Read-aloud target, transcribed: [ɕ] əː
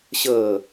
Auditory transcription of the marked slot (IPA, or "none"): ɕ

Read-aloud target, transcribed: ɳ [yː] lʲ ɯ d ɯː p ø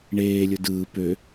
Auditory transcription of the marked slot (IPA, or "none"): eː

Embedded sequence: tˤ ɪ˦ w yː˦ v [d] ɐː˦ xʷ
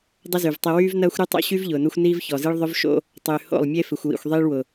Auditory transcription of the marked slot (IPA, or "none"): n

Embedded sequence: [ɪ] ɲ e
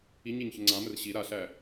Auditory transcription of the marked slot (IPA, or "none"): i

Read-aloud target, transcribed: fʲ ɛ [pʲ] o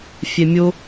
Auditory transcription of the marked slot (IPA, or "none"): mʲ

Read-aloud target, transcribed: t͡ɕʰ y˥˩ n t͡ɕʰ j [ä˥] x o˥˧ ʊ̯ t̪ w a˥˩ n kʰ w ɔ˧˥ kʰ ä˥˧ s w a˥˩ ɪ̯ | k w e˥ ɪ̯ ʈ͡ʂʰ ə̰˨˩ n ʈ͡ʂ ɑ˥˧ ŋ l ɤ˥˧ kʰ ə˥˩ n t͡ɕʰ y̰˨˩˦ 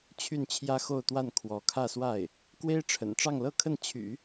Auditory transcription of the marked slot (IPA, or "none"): ä˥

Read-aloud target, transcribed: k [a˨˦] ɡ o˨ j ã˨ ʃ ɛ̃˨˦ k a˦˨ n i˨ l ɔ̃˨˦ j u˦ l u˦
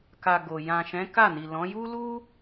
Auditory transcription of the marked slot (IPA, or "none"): a˨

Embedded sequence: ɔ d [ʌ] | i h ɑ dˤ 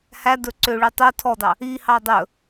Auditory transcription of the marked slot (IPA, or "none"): ɑ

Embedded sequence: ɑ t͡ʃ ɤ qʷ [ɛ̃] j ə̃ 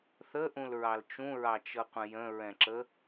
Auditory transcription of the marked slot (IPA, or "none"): ə̃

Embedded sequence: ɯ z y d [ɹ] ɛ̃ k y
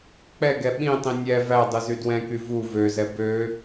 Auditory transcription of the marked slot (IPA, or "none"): w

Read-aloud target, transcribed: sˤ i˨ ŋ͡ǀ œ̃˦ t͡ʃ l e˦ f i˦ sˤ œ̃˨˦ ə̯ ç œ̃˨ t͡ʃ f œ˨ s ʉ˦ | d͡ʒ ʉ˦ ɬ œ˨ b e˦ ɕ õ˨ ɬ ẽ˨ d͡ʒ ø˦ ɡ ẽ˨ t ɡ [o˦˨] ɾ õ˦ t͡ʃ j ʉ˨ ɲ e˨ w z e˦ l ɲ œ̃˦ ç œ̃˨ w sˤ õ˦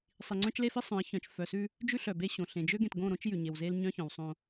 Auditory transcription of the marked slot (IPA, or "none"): õ˦˨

